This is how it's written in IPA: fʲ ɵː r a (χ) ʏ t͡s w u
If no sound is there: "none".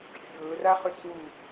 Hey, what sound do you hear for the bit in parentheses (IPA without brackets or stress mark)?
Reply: χ